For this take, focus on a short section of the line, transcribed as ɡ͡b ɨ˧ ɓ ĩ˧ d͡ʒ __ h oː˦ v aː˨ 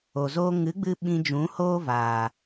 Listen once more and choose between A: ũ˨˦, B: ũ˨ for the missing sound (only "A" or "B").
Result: A